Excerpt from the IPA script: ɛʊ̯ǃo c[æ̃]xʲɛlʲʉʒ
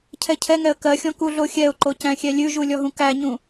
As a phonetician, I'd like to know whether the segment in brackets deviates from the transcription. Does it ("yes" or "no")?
no